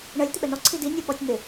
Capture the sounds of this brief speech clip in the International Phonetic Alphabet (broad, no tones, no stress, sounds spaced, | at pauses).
ɳ ɜ lʲ t̪ ɪ ɓ ɛ n ɔ ǀʰ i d i nʲ ə ɓ ɔ tʲ n̪ ɪ